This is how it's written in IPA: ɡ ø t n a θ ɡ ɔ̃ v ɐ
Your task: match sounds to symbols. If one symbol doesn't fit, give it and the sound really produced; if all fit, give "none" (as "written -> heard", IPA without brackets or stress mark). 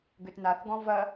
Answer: none